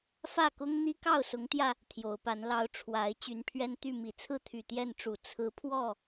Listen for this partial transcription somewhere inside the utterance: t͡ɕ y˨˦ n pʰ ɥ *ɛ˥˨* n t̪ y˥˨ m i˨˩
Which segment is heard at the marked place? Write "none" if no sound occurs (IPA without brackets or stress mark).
ɛ˦